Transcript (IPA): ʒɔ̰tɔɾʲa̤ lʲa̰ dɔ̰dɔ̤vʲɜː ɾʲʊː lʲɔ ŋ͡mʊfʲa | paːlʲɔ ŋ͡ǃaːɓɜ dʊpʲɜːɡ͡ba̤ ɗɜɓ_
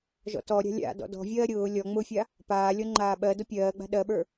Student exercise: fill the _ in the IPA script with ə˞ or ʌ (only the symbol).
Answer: ə˞